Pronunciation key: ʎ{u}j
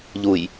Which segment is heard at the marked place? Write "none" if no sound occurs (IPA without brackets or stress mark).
u